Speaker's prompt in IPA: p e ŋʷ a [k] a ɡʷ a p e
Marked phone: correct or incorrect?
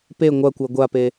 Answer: incorrect